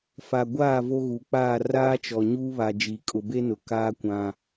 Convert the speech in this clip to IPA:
f a˨ ɡʷ aː˦˨ v o˦ ɣ u˨ k͡p aː˦˨ r aː˦ t͡ʃ ɔ˨ ɲ uː˦ β a˨ d͡ʒ iː˨ kʼ ʊ˨ b e˦ n ʊ˨ k aː˦ kʷ ã˦

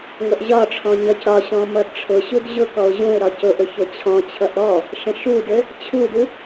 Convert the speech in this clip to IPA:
ŋʷ ə ʔ ʑ ɒ ʈ͡ʂʰ ɔ̃ ɲ ʌ c ɾ ɒ ɕ ɔ̃ m ʌ d ʈ͡ʂʰ ʊ ɕ u d ʑ ʊ k ɔ ʊ̯ ʑ ũ ɪ̯ ɾ ɒ c ʊ ʔ ʊ ç ʊ t͡ɕʰ ɔ̃ t͡ɕʰ ʌ ʔ ɾ ɔ | ʃ ə̃ ʃ u d ɘ | t͡ɕʰ u d u

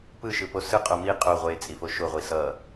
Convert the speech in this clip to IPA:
p ɯ ʃ ɯ p o s ɯ qʼ o m i qʼ o ʁʷ e t͡sʼ i f o ʃ o ʁʷ i s ʌ

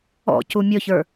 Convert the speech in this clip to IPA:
ɔ̰ c u mʲ ɔ ç ə˞

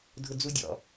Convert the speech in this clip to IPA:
dʱ ʊ d͡z u dʲ ɔ̰

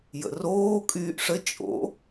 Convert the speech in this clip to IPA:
j ə̰ r oː kʼ yː ʔ ʂ ə t͡ʃʼ o̰

